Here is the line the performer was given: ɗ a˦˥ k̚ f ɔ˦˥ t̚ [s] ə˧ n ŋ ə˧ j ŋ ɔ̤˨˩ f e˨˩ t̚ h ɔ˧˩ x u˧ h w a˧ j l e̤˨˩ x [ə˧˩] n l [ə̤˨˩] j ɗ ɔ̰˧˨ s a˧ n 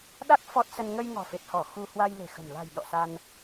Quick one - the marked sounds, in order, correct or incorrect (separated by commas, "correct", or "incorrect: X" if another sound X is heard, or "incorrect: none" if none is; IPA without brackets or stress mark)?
correct, incorrect: ə̤˨˩, incorrect: a̤˨˩